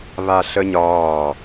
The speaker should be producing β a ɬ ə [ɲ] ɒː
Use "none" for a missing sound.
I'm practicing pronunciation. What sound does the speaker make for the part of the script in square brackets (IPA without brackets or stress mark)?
ɲ